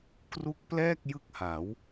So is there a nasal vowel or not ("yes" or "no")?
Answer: no